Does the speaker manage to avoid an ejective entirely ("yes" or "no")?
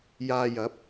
yes